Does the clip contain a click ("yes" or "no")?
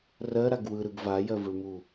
no